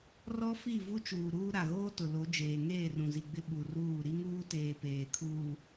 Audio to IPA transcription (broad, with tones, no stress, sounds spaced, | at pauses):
r ɔ˦ f i˦˨ v u˦ t͡ʃ uː˨ ɾ uː˦ ɾ a˨ ɣ oː˦ t ʊ˨ l o˨˦ d͡ʒ eː˨ ŋ eː˦˨ r ũ˨ z i˨ ɡ͡b ɪ˦ ɓ u˨ r uː˦˨ ɾ i˦ ŋ uː˦ t eː˨ p eː˨ kʰ uː˨